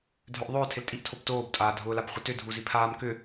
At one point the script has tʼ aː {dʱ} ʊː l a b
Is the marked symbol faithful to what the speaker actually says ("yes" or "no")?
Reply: yes